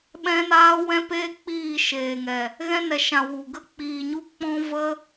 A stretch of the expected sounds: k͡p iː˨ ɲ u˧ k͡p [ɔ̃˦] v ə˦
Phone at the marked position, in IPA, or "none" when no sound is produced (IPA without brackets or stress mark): ɔ̃˦